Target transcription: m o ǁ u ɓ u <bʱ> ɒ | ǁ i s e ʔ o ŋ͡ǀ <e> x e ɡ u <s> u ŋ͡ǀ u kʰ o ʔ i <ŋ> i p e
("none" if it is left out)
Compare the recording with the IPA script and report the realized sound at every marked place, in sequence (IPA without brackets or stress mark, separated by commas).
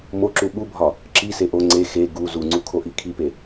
bʱ, e, z, kʰ